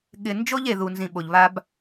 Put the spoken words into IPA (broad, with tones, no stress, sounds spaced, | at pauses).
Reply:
ɠ ɪ˨ n d͡ʒ o˦ ʎ e˨ ð u˨ n z ĩ˨ ɓ o˨ ʎ β a˦ b